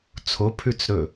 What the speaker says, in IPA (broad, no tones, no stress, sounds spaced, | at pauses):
t͡sʰ o pʰ ʉ t͡s ɾ ɵ